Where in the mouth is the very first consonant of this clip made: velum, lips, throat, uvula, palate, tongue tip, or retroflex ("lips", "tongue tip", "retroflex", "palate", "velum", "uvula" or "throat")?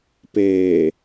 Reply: lips